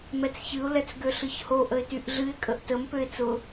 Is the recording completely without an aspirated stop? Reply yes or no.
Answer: yes